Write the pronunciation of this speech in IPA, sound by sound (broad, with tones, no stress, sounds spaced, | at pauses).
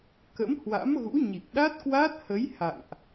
k ə̰˧˥ m h w a̰˧˥ m ɣ ṵ˧˥ ɲ i˨˩ k̚ ɗ a˦˥ t̚ k w aː˦˥ t̚ h ə˨˦ j h a̰˧˨ ŋ ʔ